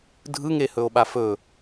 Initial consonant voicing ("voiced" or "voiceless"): voiced